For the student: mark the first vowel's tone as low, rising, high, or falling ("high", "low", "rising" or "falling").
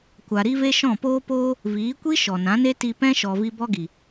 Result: low